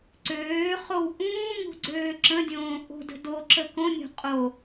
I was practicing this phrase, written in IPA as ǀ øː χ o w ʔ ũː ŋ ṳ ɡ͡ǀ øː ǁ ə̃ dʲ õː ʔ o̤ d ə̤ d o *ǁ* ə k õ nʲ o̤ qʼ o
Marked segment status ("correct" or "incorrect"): correct